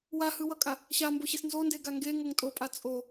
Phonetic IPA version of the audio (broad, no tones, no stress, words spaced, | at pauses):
wahɯwʌkʼa | ɕamboɕes nzondeɡa ŋɡeŋoŋ tʼopʼa t͡sʼo